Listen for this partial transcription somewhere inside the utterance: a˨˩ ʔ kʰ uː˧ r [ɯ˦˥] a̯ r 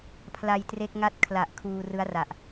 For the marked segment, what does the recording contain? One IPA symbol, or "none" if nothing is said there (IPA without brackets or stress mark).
ɯ˦˥